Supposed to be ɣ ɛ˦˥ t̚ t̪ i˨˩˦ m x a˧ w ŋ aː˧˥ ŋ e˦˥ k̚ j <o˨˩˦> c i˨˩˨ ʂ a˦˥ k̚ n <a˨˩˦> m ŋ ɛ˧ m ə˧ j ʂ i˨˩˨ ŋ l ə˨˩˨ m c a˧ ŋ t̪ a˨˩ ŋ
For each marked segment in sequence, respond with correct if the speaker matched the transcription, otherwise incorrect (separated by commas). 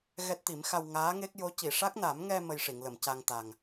incorrect, correct